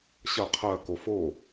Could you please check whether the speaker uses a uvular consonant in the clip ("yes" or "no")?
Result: yes